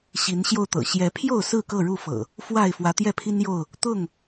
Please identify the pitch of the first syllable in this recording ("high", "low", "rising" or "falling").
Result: rising